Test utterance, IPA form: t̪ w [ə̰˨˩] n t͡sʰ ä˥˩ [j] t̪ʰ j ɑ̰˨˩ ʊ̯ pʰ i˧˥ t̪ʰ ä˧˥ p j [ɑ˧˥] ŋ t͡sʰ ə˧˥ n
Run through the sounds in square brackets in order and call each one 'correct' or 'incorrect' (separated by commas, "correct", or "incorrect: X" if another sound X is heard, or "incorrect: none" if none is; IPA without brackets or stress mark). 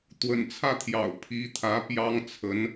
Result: correct, incorrect: none, incorrect: ɑ˥